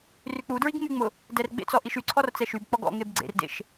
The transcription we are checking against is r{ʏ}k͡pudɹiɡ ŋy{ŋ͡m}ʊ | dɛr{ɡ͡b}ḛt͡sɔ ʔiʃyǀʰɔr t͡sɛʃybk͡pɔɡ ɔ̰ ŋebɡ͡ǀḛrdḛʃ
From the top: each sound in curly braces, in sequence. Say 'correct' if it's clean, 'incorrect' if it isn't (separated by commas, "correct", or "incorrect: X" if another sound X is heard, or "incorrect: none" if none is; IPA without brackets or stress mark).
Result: incorrect: y, correct, correct